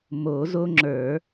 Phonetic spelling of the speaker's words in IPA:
m o˨˩˦ z o˦ ŋ͡ǁ ə˞˨˩˦

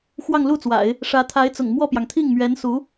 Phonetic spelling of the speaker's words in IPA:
x w ɑ˥˧ ŋ l u˥˩ t͡s w a̰˨˩˦ ɪ̯ | ʂ ä˧˥ t̪ʰ a˧˥ ɪ̯ t͡s ʊ̰˨˩ ŋ m w ɔ˥˩ p j ɑ˩ ŋ t̪ʰ i˥˩ ŋ m ɥ ɛ˧˥ n s u˧˥

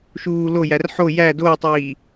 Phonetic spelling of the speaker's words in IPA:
ʃ uː l o j æ r ħ o j æ d oː tˤ iː

